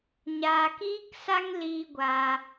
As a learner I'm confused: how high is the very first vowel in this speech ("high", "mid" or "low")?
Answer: low